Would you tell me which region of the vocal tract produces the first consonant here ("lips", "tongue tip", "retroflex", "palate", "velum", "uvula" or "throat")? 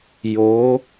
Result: palate